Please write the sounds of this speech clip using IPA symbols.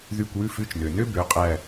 ð y˦˨ kʷ w ʉ˥ f ʉ˧˥˧ t͡ʃ n ø˩ n ø˥ b ø˩˧˩ qʼ æ˦˨

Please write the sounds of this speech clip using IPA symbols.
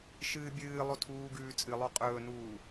ʃ ɨː bʲ ɨː lˠ o tʰ uː ɡ ʉː t͡sʼ ɨ lˠ o qʼ ɵː n uː

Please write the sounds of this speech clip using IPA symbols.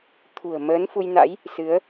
t̪ʰ ṳ˨˩ ə̯ m əː˨˦ n f u˧ j n a̰˧˥ j | s ɨ˨˦ ə̯

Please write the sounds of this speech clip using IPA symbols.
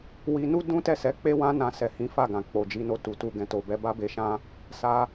w i˦ n u˦ d ũ˦ t ɛ˦˨ s ɛ˨˦ k͡p e˦ w ã˦ n ã˧ s ɛ˨ h ĩ˨˦ f a˦˨ ɡ ã˨ k͡p o˨ d͡ʒ i˨˦ n o˧ t u˨ t u˧ ɡ ɛ̃˨ t o˨ b ɛ˨˦ b a˦ b e˧ ʃ ã˦ | s a˧

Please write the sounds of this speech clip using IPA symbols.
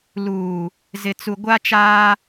l uː˨ | z ɪ˨ t͡s u˨ ɡʷ a˦ t͡ʃ aː˦

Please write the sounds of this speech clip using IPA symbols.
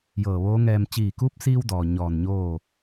j ɤː˧˩ ʋ oː˧˥ ŋ ɛː˧ m t͡ɕ iː˧˩ k uː˧˥ p̚ s iː˧ w d ɔː˩ ɲ ɔː˧˩ n ɲ oː˥˨

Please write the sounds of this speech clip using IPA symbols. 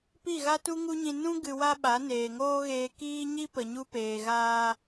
p i˦˨ ɣ a˦ t u˦ ŋ u˦ ɲ ĩ˧ n ũ˦ ɡ ɨ˧ w a˦ ɓ a˨˦ n eː˨ ŋ oː˦ ɣ eː˧ k iː˦ ɲ i˦ p ə˨ ɲ u˧ p eː˨ ɣ aː˧

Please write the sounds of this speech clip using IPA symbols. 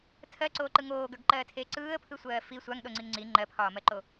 tʰ ɜ ǀ oː ǃ ɯ ŋ oː ɡ ə˞ ɡ ǃ ɜː tʰ eː ǀ ɯː ə̯ pʰ ɯ sʷ ɜː f i sʷ a ŋ ɗ o ŋ͡ǀ i ŋ ŋ͡ǀ i ŋ͡ǃ ɜ pʰ ɒː m ɜ ǃ o

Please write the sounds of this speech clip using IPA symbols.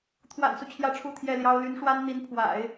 t̪ʰ w a̰˨˩ n s u˦ t͡ɕʰ j ä˥˧ ʈ͡ʂʰ u˥˧ t̪ʰ j ɛ˥˩ l j ɑ˥ ʊ̯ l y˧˥ n ʂ w a˥ n n̪ i˧˥ n pʰ w a̰˨˩˦ ɪ̯

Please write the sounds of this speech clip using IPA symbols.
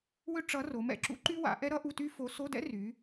w ʏ˥ ʈ͡ʂ ʌ˧˥ r o˩˧ m ɛ̰˩˧ ǁ ṵ˧˥ ǃ y˥ w a̰˩˧ ʔ ɛ˥ ɾ ʌ˥ ʔ u˧˥˧ t y˥ f o˧˥ s o˧˥˧ d ɛ̰˥ r y˩˧

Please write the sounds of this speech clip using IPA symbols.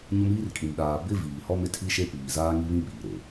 ɲ ʊ˦ m iː˦ r kʼ ĩ˨ m ɗ aː˨ b ɪ˦ v iː˨ h ɔ˦ m ɪ˦ tʰ i˦ ʃ e˦ p iː˨ z aː˦ ŋ i˦ β ĩ˦ ɓ iː˨ ɾ e˨

